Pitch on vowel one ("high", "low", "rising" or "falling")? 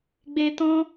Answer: high